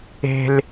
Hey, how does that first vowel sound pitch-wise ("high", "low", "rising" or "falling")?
high